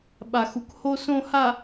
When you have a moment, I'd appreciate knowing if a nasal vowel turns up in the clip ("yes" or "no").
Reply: yes